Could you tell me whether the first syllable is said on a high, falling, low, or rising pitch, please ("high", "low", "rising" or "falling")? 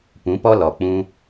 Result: rising